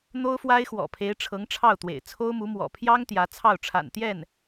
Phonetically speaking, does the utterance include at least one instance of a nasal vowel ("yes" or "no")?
no